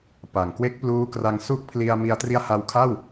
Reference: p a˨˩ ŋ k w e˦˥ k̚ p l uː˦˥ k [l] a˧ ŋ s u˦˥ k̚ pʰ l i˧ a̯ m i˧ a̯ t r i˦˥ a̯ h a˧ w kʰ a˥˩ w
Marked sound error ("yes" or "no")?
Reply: yes